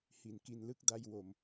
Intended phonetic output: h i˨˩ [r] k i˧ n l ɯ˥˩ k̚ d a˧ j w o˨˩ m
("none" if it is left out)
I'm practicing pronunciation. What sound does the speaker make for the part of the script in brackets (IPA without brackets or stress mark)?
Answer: n